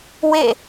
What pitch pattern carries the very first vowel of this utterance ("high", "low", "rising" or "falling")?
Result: falling